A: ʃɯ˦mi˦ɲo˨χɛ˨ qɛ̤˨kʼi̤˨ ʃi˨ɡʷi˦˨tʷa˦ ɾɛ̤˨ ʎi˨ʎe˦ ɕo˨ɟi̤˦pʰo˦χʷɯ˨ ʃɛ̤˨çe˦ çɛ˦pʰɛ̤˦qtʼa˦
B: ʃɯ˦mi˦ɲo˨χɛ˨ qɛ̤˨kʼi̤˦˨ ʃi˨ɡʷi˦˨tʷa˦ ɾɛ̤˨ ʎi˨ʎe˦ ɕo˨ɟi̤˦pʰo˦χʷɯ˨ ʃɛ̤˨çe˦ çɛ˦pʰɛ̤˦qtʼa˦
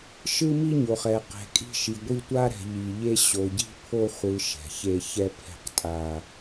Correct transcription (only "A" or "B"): B